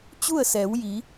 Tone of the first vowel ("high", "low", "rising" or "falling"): falling